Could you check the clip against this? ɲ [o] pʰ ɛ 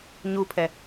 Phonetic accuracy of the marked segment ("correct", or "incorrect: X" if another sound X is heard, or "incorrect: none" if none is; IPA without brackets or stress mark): incorrect: u